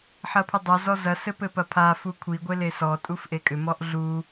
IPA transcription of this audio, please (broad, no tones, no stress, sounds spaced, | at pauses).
ħ ɐ pʰ ʏ dˤ œ z ɔ z ɐ s ɘ p ɘ p ɐ pʰ a f u kʷʰ i ɡʷ e l e s ɔ tʼ u f ʔ e kʼ ʏ m ɔ ʔ ɮ u